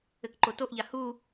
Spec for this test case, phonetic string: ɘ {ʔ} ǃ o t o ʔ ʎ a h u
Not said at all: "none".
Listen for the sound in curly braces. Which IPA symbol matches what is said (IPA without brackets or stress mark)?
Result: k